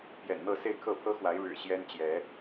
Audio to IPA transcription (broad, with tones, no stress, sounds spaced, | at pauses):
p j ɛ̰˨˩ n n̪ ɤ˥˨ s e˥˨ ɪ̯ kʰ ɤ˥˨ pʰ ɤ˦ x w a˨˦ ɪ̯ ɻ ɻ̩˨˩ ɕ j ɛ˦ n t͡ɕ j ɛ˨˦